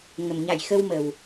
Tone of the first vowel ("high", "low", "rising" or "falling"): low